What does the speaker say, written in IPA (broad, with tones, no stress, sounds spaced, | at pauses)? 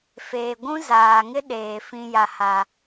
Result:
f eː˨ ɡʷ ũ˦ z aː˨ ŋ ɪ˦ ɗ eː˨ f ĩ˦ j a˦ h a˦